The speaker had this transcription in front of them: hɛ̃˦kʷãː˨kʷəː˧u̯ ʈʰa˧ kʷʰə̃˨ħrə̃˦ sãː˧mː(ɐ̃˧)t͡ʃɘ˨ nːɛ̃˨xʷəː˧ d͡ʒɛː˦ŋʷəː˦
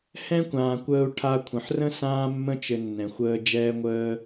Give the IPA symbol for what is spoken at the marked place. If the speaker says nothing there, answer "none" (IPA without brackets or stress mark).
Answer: ə̃˧